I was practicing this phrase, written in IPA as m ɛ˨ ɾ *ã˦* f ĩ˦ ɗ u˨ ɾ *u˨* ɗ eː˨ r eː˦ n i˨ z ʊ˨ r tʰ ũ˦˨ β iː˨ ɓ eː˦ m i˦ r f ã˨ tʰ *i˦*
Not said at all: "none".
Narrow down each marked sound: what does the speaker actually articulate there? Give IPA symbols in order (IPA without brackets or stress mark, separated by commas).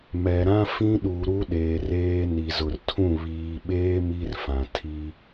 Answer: ã˦, u˦, i˦